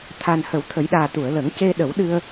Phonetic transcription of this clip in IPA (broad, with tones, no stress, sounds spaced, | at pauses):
t̪ʰ a˨˩ n h ə˨˩˦ w t̪ʰ ə˨˩˦ j ɗ aː˨˩ t̪ u˨˩˨ ə̯ l ə˨˩˦ ŋ c e˧ ɗ ə˨˩˦ w ɗ ɨ˧ ə̯